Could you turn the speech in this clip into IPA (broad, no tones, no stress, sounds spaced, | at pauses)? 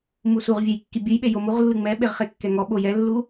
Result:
m u s u ʁ vʲ ɛ j kː i bʲ u j ɓ e j o m u ʁ lː ɯ ŋ͡m ɛ ɓ e ʁ χ e kː ɛ ŋ ɔ ɓ o j ɛ lː u